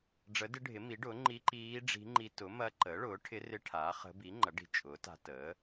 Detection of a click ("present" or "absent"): present